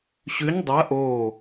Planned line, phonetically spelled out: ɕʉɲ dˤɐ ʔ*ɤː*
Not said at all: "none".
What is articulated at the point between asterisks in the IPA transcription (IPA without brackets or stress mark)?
oː